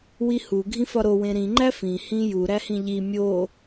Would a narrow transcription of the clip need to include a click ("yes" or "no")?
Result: yes